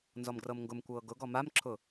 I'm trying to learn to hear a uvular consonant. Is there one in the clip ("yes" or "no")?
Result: no